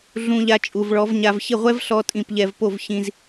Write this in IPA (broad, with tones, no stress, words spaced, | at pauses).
ɮũ˧ʎa˧ t͡ʃʼu˨vɭɔ˨˦vɲa˧v çɪ˦˨ʁʷɛ˦vɬɔ˧ tʼĩ˧p ʎɛ˧vpo˦˨v çĩ˧z